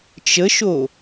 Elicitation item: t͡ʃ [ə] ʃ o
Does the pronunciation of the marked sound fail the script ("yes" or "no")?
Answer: no